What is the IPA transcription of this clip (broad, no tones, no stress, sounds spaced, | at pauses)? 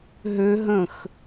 ɦ ø ɦ ə̃ x